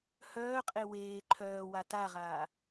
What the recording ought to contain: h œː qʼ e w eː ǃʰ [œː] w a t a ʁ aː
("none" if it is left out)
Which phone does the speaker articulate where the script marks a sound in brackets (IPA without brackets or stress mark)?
œː